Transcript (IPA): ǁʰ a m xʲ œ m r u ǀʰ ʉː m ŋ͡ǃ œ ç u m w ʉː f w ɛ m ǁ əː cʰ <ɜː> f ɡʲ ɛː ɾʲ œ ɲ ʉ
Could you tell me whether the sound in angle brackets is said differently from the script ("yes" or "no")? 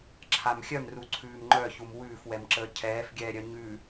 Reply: yes